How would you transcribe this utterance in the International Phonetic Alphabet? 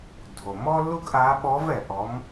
dʱ o˩ m ɔ˥ lː u˥ ɡ ʔ aː˧˥ ɓ ɔ˧˥ v ɛ˩ ʔ ɔ˩˧ m

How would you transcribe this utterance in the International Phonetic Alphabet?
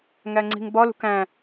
ŋ æ ŋ͡ǀ i̤ ŋ b ɒ l ṳ k æ̃

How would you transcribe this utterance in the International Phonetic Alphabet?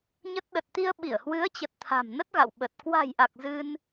ɲ ə˦˥ t̚ ɗ ə˨˩ t̚ t̪ i˧ ə̯ ɓ i˧˩ ə̯ h w ɨ˨˦ ə̯ t͡ɕ ə˨˩ t̚ t̪ʰ a̤˨˩ m n ə˦˥ t̚ ɣ a̰˧˨ w ɓ ə˨˩ t̚ k w a̤˨˩ j ʔ a˨˩ k̚ z ɨ˧ n

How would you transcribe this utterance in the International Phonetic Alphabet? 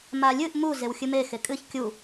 m a lʲ ɨ ʔ m u z e w xʲ ɨ m e x e kʼ ɨ ç kʲ u

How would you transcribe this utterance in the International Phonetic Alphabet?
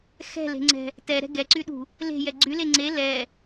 x ɛ̤ l e̤ ŋ͡ǀ ɛ̤ | t ɛ ɾ ɛ̤ ɡ ɛ ǀ y ɗ ṳ | l e̤ j ɛ ɡ͡ǀ y l e ŋ͡ǀ e l ɛ

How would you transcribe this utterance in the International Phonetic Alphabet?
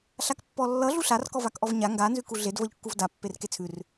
ɬ a k pː ɔ lː ʌ ɮ u ɬ a r k ɔ v a k ʔ ɔ v ɲ a ŋ ɡ a n z ʉ k u ɮ e d v ʌ ʎ kː u v d a pː e r k e t͡sʰ ʉ r

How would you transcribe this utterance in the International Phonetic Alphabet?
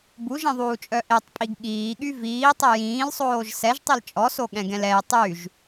b u ʒ ĩ ðˤ uː t͡ʃʼ œ ʔ e tˤ pʼ i ɡ ɠ iː ɠ y v iː tˤ e j ĩː l sˤ oː ʒ s ɛ ʒ tˤ i l t͡ʃʼ ɔ s o ɠ ɛ̃ ɡ ɛ̃ l ɛ j tˤ y ʒ

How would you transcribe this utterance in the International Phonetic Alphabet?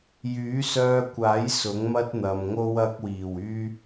j yː˨˥ s œː˧ kʷ aː˨˥ j s ʊ˨˥ ŋ m ɐ˥ t̚ n̪ ɐ˨ m ŋ o˥ w ɐ˧ k̚ w iː˨˩ w yː˥

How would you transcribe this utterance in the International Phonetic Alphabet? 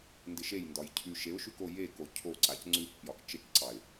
n d ɪ ʃ e j n d ɒ j cʰ ʉ ʃ e ʊ̯ ʃ ʉ k o j e k o cʰ o ǀ a c ŋ͡ǀ ʉ k p j ɒ k t͡ʃ e k ǀ ɑ ɪ̯

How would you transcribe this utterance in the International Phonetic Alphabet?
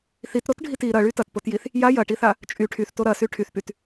θ i t ɾ o t ɖʱ i t i ɾ ɐ ɭ y t ɐ t p o t j i θ | j a j ɐ ʈ i θ a | t͡ʃʼ y ʈʰ y θ t o ɾ ɐ s y ʈʰ y θ p y t

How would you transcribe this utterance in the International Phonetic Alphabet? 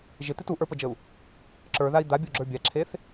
ʒ ɪ t̪ ɪ t u ʔ ə˞ p ə d͡ʒ ə u̯ | ǁ ə˞ ð a i̯ d̪ a bʲ u ɡ͡ǁ ə˞ bʲ a ǁʰ e θ

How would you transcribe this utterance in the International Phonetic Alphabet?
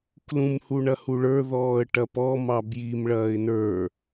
k l ũ m h u ɳ ɐ h u ɭ ə˞ ð ɔː ə̯ ʈ ɐ p ɔ m ɑ b j i m ɭ ɐː ɪ̯ n ə˞

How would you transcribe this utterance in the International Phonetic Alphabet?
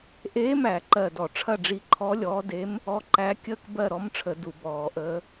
ʔ eː˧˥ m æ˧˩˧ ǃ ɜ˧˩ d ɔ˧˩˧ ʈ͡ʂʰ ɐ˥˨ ɖ͡ʐ i˧˥ ǃʰ ɔ˧˥ lʲ ɔː˧˥ d e˧˥ m | ɔ˧˥ ǃ æ˧˥ kʲ əː˥˨ k b ɜ˥˨ ɾ ɔ˧˥ m ʈ͡ʂʰ ə˧˩˧ d u˧˩˧ b ɔː˧˩˧ ʔ əː˧˥

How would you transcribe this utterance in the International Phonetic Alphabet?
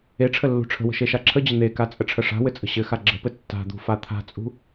e ʈ͡ʂʰ ə lː ṳ ʈ͡ʂʰ ə̤ w ə̤ ʃ e ʃ a ǁʰ ə d͡ʑ ə n̪ e k a t͡sʼ ə ʈ͡ʂʰ ə ʂ a̤ w ɘ t͡sʼ ə̤ ɕ ɘ x a ɡ͡ǁ ə̤ p ɘ tː a̤ d̪ ṳ f a t̪ʰ a̤ t͡sʼ ṳ

